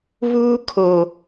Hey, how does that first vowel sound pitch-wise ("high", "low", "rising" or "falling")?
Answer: high